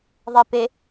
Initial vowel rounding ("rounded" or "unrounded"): unrounded